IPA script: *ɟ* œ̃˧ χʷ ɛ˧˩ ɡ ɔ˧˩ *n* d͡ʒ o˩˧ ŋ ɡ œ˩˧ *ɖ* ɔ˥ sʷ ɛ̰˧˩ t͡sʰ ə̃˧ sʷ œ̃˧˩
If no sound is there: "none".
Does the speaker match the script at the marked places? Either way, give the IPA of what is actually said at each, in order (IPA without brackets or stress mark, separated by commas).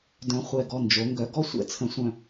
d, n, ɡ